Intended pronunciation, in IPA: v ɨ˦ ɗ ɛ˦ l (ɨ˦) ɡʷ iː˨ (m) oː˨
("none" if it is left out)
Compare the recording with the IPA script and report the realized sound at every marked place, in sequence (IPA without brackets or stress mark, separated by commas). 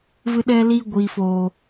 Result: i˦, f